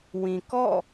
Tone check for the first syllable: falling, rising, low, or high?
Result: low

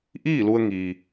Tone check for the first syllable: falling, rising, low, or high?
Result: falling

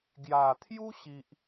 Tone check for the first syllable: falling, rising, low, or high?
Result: low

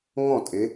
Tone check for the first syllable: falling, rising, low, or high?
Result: falling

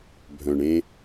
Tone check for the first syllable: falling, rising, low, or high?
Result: low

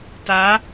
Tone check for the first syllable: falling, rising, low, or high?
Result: rising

